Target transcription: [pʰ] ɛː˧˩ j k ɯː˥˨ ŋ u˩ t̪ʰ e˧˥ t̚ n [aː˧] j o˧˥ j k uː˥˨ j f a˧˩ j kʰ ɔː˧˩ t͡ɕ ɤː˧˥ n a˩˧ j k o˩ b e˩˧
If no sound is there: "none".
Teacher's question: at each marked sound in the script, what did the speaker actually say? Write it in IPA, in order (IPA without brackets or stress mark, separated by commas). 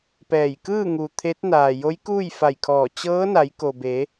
p, aː˩